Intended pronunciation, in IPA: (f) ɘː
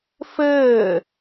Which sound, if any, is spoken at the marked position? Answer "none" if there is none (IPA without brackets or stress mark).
f